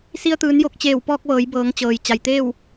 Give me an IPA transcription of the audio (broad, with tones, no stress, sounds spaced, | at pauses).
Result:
s i˧ ə̯ t̪ ɯː˩˧ n j o˧˩ k̚ t͡ɕ eː˧˩ w p ɔː˧ k̚ ʋ ɤː˩˧ j b ɤː˩˧ ŋ t͡ɕ ɤː˩ j t͡ɕ a˩ j t̪ eː˥˨ w